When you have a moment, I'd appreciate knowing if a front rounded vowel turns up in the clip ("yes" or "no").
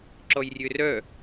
yes